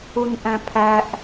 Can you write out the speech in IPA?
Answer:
u n ʔ æ̃ pʰ æ ʔ

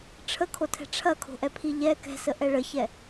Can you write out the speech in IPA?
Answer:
ʈ͡ʂʰ ə kʰ o tʰ ɛ̤ ʈ͡ʂʰ ɐ kʰ o̤ ʔ ɛ pʰ i ʎ ɛ k ɛ̤ s ə ʔ ɛ ɭ ə ç ɛ

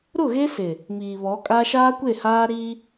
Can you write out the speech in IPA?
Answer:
ɾ ʊ˦˨ ɣ e˦ s ɪ˨ | m iː˨ β ɔ˨˦ kʼ a˦ ʃ aː˦ kʷ e˦˨ h aː˦ ɾ iː˦

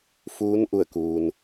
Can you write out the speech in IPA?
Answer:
f uː˧˥ n ʔ u˧˩ ə̯ k uː˩ n

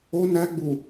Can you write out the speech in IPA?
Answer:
o n æ ɡ͡b u

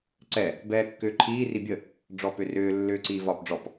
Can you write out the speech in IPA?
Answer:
ǀ ɛ | b ɛː kː ʏː ǃʰ iː r i bʲ ə | ɖ͡ʐ ɔ p ʏ r ʏː lː ʏː ǀ iː v ɒː p ɖ͡ʐ ɔ p

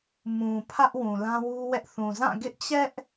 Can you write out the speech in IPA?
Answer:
m ũ˨ pʰ ä˦ ʔ w ũ˨ l ã˦ w u˦ w ɛ˦ ʔ θ ũ˨ z ã˦˨ ɡ ɪ˦ ʔ t͡ɕ ɛ˦ ʔ

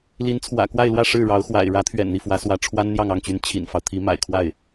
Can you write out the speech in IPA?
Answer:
l i˧˥ n t͡sʰ w ä̰˨˩ k w a˥˧ ɪ̯ l w ä˥˧ ʂ ɻ̩˥˩ ɻ ɑ˧˥ ʊ̯ x w a̰˨˩ ɪ̯ ɻ ä˧˥ t̪ʰ ɥ ɛ̰˨˩ n n̪ i˥˩ f w ä˧˥ s w ä˧˥ ʈ͡ʂʰ w a˥ n n̪ j ɑ˥˧ ŋ ɑ˥˩ ŋ t͡ɕ y˧˥ n t͡ɕʰ ḭ˨˩ n f ɑ˦ ʊ̯ t̪ʰ i˧˥ m a̰˨˩ ɪ̯ kʰ w a˥˩ ɪ̯

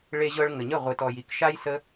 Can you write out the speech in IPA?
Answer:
ɭ e˧ ʑ ɤ˧ ɭ ŋ ə˨ ɲ ə˦˨ ʁʷ ɨ˨ t ɔ˨ j i˨ k ʃ a˦ j s ə˦

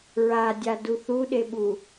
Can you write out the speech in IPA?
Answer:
ɹ a dʲ a d u θ u ɗ e ɓ u

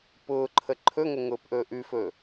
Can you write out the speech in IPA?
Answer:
p ʊː ǃʰ ə ǃʰ ɵ ŋ ə ŋ ʊː p ʔ ɵː ʔ ʉ f ɵː

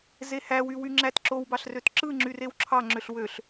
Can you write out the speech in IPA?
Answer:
z e h æ w y w y ŋ͡ǁ æ t ǁ o w b ɑ ɬ r ø t ǁ ɯ ŋ͡ǁ y r e w ǁʰ ɑ ŋ͡ǁ ø ɬ w ø ɬ

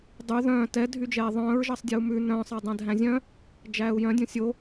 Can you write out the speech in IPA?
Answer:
dˤ y ð œ̃ː t ɛ dʱ y d͡ʒ ɛː ðˤ œ̃ː ɹ ʒ ɑ sˤ dʲ ɛ u̯ m ʉ n œ̃ː sˤ ɑ dˤ ɛ̃ dʱ æ̃ zʲ œ̃ | d͡ʒ æː u̯ j œ̃ dʲ õ sʲ o

